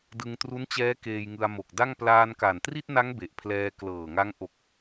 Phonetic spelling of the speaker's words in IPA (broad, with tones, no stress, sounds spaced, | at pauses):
d ɯ˧ ŋ t r u˦˥ n t͡ɕ ɛː˦˥ k eː˧ j ŋ ɯ˧ a̯ m o˨˩ k̚ d a˥˩ ŋ p l aː˧ n k a˨˩ n t r i˥˩ t̚ n a˦˥ ŋ b e˨˩ ʔ pʰ l ɛː˧ k l ɤː˨˩ ŋ a˦˥ ŋ ʔ o˨˩ k̚